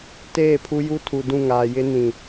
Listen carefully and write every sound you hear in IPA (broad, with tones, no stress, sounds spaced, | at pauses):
t eː˦˨ pʰ u˦ j u˦ tʰ u˨ d ũ˦˨ ŋ aː˨ j ɪ˦ n ĩ˨